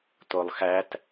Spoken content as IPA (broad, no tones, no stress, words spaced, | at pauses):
tolˠxæt